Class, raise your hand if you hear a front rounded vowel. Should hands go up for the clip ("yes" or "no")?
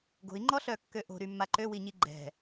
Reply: yes